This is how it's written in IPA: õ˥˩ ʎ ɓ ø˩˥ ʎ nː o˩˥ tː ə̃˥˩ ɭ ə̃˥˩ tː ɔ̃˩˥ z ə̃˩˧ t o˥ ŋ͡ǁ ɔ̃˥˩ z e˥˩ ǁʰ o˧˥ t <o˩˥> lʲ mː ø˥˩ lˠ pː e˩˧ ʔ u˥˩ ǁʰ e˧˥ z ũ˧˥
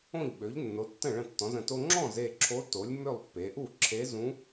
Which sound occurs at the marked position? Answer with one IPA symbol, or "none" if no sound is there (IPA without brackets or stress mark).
o˩˥